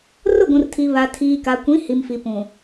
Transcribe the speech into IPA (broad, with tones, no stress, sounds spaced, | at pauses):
r ʊ˦˨ ɡʷ ũ˨ r tʰ i˨ β a˨ tʰ iː˨ k a˨ kʷ ĩ˨˦ h i˨ m f i˨ p ũ˨